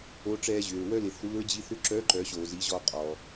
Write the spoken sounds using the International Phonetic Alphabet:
o˧˥ ʈ͡ʂ ɛː˧ ʑ ʏː˩ ɹ w œ˥ l ɪ˩˧ θ uː˧˥ ɹ d͡ʑ i˧˥ θ ʏ˥ ǁ œː˧˥ ǃ œ˩˧ ɕ oː˩ z i˩˧ ʑ ɔ˧ qʼ ɔː˩

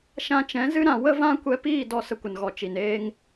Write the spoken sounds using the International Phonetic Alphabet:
ʃ ã˧ t͡ʃ ɛ̃˨˦ z ɨ˦ ɾ ã˧ w ə˦ v ã˦ kʷ ɛ˧ p iː˦˨ d ɔ˦ s ə˧ kʷ ə˨ n ɣ ɔ˨ t͡ʃ i˨ n eː˧ ŋ

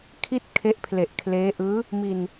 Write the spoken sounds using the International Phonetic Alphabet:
kʰ i˥˩ t̚ kʰ e˦˥ ʔ pʰ l e˨˩ ʔ kʰ l eː˦˥ ʔ ɯː˦˥ | m i˧ n

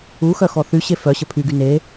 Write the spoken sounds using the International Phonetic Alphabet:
u x œ x ɔ θ y ɕ e f œ ɕ ə pʰ y ɡ y n e

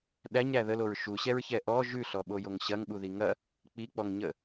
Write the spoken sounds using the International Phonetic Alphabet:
ɗ æ ɲ ɾ æ ð ə l o ɹ ʃ u ɕ ɛ ɹ ç ɛ ʔ ɔ ʒ ʉ ɬ ɔ ɓ o j o ŋ ɕ ɐ ŋ ɓ u ð i ŋ ɐ | k͡p i k͡p ɔ ŋ ɲ ə

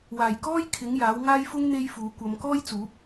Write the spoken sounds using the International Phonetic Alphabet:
w aː˨˩ j k ɔː˥ j kʰ ɪ˨˥ ŋ j aː˨˥ w ŋ aː˥ j f ʊ˥ ŋ n̪ e˥ j f uː˨˧ kʷ ɐ˨˧ m k ɔː˥ j t͡s uː˨˥ p̚

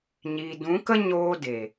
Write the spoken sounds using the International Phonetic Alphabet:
ɲ i˨ d ũ˨˦ k ə˦ ɲ oː˧ d e˨

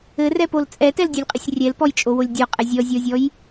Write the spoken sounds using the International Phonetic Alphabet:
ɘ r ɛ p o l t͡sʼ ɛ t ɛ l dʲ ɛ lʲ qʼ ɘ sʲ rʲ ɛ l p ɔ j t͡ʃʼ o w o lʲ dʲ ɔ qʼ ɛ zʲ ɔ zʲ ɔ zʲ ɔ j

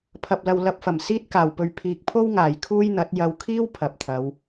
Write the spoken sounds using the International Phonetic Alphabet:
pʰ ɐ˨ p̚ l ɐ˨ w l ɐ˧ p̚ f ɐ˨˩ m s iː˥ t̚ k aː˨˩ w p ɵ˨ ɥ pʰ iː˨ k̚ pʰ o˥ w ŋ aː˨˩ j kʰ uː˥ j n̪ ɐ˨˥ t̚ j ɐ˨ w kʰ iː˥ w pʰ ɐ˨ p̚ t̪ʰ ɐ˨˧ w

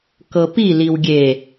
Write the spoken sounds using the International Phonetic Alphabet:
k ɤ p i l i w ɡʲ e

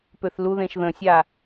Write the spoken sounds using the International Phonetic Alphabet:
p ø θ l u ð ẽ ʃ ð ə̃ sʲ a

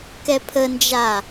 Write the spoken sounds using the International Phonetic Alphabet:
k ɛ pʰ ə n d͡ʒ a

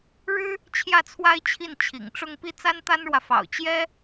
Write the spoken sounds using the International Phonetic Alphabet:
ɻ ɻ̩˥ | t͡ɕʰ j ä˥˩ t͡sʰ w a˥ ɪ̯ t͡ɕʰ i˥˩ n t͡ɕʰ ḭ˨˩ ŋ ʈ͡ʂ ʊ˥˧ ŋ p i˥˩ t͡s a˥ n t̪ a˥ n ɻ w ä˨ f ɑ̰˨˩ ʊ̯ t͡ɕ j ɛ˥

